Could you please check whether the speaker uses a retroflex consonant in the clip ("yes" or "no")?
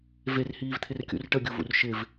yes